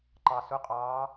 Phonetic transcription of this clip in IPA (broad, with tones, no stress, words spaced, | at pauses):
ǃɑ˩sʊ˩˥qʼɑː˩˧